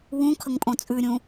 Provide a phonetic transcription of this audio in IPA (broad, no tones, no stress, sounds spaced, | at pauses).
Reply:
w ũ kʰ ə ŋ pʼ õ t͡sʼ ʉ ɾʲ ũ